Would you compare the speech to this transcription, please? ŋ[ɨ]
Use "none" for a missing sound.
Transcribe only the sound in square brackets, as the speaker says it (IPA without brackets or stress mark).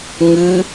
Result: ɨ